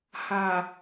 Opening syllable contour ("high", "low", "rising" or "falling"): low